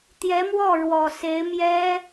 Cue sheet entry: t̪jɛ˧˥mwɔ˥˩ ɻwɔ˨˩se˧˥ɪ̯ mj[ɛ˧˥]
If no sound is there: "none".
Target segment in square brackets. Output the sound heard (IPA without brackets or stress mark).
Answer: ɛ˥